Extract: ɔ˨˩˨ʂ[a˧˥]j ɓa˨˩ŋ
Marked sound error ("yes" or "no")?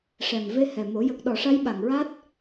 no